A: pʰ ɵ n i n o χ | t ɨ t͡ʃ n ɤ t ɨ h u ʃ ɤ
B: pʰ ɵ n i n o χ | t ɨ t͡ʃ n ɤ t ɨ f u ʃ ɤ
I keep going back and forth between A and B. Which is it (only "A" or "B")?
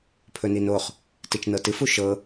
B